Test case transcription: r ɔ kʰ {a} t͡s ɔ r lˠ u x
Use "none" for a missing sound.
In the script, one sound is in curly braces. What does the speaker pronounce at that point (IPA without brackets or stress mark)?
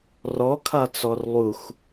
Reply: a